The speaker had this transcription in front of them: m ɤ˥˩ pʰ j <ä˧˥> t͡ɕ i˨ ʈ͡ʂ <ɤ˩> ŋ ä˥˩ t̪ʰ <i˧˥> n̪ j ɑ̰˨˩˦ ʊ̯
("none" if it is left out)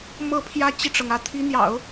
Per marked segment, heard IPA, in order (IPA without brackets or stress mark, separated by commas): ä˥, ɤ˩, i˧˥